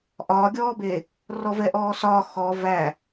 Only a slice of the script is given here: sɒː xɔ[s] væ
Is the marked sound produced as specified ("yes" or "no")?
no